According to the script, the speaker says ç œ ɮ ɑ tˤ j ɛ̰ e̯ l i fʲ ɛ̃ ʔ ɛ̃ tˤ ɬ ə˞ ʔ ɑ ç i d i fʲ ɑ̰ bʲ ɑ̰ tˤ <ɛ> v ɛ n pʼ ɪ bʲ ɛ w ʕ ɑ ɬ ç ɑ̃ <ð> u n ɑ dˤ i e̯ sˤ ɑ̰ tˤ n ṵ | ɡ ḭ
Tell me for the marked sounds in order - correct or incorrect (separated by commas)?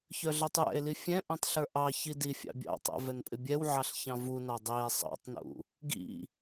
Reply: incorrect, incorrect